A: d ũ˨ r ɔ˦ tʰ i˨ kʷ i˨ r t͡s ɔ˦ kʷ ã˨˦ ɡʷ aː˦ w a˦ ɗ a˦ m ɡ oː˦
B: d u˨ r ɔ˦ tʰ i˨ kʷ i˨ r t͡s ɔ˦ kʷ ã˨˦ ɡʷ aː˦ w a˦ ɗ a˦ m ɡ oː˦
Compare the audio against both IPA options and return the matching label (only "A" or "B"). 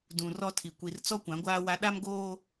A